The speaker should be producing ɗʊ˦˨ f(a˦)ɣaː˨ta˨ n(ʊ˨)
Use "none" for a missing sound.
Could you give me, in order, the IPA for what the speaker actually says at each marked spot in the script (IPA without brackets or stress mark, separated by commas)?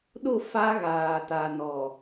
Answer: a˦, ɔ˨